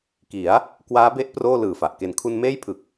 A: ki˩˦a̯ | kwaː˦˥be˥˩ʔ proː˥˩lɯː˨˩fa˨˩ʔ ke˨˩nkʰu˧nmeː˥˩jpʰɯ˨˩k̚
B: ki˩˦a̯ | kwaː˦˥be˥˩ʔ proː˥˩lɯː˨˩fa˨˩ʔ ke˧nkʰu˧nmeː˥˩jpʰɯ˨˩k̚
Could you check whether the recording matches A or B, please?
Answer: A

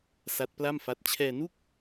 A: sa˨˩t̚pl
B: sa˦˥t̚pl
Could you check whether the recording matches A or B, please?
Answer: B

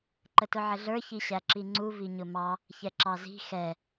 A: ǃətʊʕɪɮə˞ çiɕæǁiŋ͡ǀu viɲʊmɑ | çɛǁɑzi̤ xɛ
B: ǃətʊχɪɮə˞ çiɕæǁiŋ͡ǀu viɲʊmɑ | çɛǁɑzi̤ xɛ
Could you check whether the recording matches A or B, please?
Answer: A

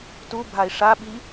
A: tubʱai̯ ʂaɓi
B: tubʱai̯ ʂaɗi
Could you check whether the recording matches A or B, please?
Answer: A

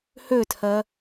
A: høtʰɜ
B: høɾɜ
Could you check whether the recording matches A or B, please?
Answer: A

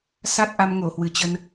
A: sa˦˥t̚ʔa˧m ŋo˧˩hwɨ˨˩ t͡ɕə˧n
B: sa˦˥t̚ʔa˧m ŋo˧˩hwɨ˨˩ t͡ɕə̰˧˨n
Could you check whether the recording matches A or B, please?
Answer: A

